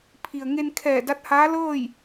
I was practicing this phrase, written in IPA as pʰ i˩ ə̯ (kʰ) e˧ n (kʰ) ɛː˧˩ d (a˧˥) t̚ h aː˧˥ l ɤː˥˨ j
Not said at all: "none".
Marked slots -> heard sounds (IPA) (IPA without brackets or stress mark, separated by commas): ŋ, kʰ, a˧˥